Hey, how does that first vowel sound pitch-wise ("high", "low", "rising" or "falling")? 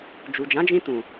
low